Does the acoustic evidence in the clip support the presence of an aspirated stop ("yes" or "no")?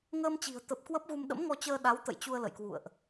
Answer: no